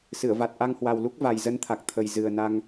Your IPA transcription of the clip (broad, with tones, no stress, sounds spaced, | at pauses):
s ɨ˧˩ ə̯ v a˨˩ t̚ ʔ a˧ ŋ h w a˨˩ w l u˦˥ k̚ v a˨˩ j z ə˧ n t̪ʰ a˨˩ k̚ t̪ʰ ə˨˩ j z ɨ˨˩ ə̯ n a˧ ŋ